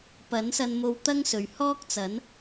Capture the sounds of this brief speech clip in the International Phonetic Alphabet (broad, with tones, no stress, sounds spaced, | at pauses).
p ɐ˨˥ n s ɐ˧ n m o˧ w t̪ ɐ˥ ŋ s ɵ˨ ɥ h ɔː˥ k̚ t͡s ɐ˨˥ n